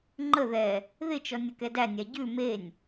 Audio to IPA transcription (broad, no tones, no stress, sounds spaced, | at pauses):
ŋ͡ǃ ə ð ɛ | ð ɪ t͡ʃ ɔ nʲ ə k ɛ d æ nʲ æ ɟ ʉ m e nʲ